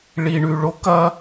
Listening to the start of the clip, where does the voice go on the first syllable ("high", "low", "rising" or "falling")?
low